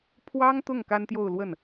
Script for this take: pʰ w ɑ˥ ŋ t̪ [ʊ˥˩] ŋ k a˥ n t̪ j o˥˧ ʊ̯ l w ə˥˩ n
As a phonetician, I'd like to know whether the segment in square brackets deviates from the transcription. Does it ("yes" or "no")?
no